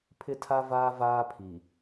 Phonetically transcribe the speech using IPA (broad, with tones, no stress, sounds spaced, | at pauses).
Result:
pʰ ɪ˦ tʰ a˦ v aː˦ v aː˦ pʰ i˨